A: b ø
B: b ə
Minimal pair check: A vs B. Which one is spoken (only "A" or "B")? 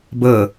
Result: B